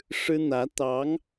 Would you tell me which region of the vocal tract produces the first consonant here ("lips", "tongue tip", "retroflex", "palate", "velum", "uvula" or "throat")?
retroflex